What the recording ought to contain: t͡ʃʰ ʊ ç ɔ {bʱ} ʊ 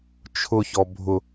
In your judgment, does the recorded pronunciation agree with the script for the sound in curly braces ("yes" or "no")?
yes